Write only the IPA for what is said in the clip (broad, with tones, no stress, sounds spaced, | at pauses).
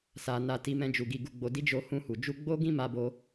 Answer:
s a˨ n a˧ t i˧ m ɛ̃˧ d͡ʒ u˨ ɡ i˨ ɡ u˨ ɡ͡b o˨ d i˧ d͡ʒ o˧ h ũ˧ h u˨ d͡ʒ u˧ ɡ͡b o˦ ɡ ĩ˦ m a˧ b o˧